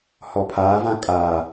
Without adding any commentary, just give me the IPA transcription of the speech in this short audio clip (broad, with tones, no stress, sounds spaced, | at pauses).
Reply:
h ɔ˨ pʰ aː˨˦ v ã˦ kʼ aː˨